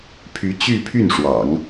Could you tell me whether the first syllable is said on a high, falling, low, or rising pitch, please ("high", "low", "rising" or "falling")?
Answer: rising